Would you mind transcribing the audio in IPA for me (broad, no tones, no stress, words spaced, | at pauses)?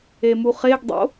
emuχeɡdˤo̰